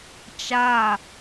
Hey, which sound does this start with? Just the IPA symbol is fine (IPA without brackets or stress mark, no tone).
t͡ʃ